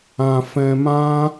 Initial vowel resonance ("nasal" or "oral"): nasal